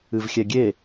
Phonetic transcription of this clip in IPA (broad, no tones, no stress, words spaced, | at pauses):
ɨvxʲɛɡʲe